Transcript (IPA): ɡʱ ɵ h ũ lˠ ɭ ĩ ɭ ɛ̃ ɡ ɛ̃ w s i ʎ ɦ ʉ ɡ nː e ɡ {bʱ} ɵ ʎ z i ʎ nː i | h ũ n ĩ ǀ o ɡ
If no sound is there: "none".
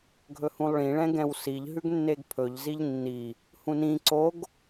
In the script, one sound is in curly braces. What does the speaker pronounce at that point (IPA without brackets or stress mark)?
pʰ